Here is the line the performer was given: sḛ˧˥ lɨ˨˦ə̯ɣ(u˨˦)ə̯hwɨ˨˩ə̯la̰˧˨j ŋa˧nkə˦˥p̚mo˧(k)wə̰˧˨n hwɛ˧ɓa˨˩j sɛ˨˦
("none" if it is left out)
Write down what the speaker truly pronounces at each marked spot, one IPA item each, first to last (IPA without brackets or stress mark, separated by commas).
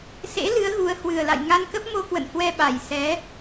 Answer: u˨˦, k